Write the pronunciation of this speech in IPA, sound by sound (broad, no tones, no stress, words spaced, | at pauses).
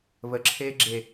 βəǁʰeː ɡ͡ǁe